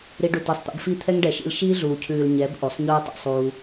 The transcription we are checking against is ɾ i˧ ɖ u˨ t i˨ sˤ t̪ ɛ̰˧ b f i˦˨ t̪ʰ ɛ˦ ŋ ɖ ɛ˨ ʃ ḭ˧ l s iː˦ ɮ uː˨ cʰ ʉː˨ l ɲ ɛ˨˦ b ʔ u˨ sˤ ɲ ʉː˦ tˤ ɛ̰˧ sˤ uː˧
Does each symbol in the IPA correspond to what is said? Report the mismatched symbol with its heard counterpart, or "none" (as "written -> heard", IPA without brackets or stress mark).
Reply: s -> ʃ